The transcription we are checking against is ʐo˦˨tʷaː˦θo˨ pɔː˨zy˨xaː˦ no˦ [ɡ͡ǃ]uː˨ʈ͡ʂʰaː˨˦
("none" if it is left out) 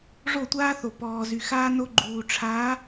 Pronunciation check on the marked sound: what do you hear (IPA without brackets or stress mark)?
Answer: ɡ͡ǃ